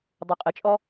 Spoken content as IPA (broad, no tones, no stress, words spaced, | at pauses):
dˤuqʼət͡ʃʼɔ